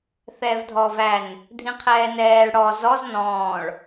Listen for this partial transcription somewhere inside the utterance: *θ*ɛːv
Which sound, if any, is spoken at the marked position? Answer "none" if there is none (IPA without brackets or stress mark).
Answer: θ